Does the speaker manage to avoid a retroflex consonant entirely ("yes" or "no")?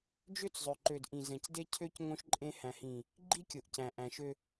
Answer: yes